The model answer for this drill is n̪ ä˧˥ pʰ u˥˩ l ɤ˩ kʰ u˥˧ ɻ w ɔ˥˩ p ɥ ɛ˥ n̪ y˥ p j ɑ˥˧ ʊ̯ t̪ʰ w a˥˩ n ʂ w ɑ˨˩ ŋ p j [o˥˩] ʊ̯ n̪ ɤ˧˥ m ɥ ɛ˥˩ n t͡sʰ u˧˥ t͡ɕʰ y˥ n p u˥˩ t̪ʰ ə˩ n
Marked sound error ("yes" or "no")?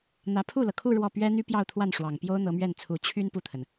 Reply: yes